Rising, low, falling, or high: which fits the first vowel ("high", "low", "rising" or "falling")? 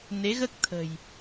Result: rising